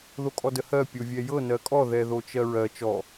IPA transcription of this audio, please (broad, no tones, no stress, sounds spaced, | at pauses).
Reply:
ð o kʼ ɔ d ə h ɜ pʲ o vʲ ɛ j ɤ n ɜ kʼ ɔ ð ɛ ð o t͡ʃ ɜ ɹ ɜ t͡ʃ ɔ